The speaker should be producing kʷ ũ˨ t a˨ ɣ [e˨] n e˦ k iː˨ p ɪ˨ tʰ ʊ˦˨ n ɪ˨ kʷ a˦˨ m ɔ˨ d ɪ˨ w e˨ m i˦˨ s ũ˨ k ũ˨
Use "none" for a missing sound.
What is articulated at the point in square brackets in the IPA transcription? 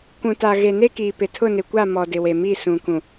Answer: e˨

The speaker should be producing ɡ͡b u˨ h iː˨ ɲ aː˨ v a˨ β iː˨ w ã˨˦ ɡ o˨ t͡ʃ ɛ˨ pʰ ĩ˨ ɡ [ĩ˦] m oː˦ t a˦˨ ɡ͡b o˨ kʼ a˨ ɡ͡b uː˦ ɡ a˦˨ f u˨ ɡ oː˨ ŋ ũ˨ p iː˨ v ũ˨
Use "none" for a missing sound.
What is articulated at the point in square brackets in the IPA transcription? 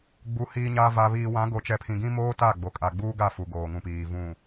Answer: ĩ˦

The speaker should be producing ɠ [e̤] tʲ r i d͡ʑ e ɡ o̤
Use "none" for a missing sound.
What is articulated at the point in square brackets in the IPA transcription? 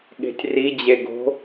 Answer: e̤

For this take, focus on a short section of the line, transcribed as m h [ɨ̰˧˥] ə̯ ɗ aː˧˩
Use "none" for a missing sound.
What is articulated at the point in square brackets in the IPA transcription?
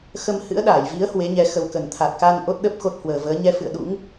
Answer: ɨ̰˧˥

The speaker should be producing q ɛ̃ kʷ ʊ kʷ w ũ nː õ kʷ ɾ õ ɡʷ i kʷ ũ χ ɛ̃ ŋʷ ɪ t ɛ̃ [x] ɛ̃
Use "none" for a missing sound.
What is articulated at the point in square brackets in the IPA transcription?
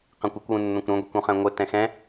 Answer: x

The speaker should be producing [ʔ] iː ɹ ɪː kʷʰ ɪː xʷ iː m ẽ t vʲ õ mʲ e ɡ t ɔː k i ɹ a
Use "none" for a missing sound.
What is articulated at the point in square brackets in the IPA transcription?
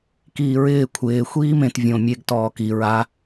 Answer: k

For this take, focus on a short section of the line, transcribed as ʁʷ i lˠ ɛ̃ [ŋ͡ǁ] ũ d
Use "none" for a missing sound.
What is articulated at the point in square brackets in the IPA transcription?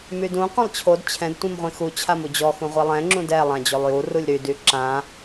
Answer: ŋ͡ǁ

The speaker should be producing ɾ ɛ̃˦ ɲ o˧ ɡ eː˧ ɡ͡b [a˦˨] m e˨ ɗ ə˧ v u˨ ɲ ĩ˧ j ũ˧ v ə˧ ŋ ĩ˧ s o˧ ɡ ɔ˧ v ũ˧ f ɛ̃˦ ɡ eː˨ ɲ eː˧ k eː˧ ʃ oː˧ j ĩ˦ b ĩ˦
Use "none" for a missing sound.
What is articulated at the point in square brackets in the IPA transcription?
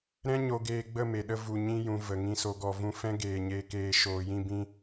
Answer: ə˦˨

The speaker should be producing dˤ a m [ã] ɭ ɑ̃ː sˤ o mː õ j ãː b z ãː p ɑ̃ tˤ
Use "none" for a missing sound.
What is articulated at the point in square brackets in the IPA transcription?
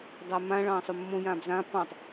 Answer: ã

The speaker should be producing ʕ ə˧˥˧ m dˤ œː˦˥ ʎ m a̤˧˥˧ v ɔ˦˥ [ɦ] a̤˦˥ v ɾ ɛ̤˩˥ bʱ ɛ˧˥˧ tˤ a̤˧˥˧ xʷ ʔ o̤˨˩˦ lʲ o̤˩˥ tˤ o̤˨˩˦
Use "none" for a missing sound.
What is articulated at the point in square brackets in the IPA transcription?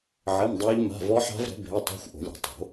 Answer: ħ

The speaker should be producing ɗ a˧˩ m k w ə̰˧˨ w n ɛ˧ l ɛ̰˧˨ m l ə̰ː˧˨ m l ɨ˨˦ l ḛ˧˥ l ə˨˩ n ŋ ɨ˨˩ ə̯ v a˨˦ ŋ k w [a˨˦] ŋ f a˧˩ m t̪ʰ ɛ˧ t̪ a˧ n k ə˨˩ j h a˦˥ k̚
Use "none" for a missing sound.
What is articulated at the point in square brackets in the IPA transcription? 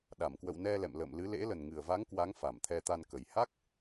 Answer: a˨˦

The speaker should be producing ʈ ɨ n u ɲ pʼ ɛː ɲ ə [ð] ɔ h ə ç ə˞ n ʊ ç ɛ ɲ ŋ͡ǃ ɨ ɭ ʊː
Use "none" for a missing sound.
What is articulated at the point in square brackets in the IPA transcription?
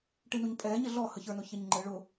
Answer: ɮ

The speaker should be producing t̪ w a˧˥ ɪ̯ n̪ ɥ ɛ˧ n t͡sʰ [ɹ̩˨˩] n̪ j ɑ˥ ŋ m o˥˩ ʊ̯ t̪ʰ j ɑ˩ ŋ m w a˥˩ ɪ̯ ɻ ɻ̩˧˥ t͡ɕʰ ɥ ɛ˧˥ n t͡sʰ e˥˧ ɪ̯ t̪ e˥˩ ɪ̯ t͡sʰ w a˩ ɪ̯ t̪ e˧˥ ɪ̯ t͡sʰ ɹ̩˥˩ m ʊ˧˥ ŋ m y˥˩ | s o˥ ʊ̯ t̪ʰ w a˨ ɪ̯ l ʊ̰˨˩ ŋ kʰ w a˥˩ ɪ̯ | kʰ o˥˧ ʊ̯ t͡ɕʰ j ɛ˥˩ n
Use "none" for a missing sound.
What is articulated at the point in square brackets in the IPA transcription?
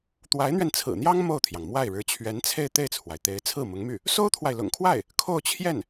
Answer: ɹ̩˨˩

